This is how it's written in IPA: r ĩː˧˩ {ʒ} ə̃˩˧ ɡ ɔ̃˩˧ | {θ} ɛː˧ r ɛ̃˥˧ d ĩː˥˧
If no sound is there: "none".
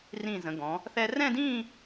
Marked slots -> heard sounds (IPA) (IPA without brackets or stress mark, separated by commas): z, θ